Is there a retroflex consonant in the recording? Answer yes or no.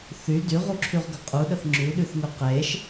no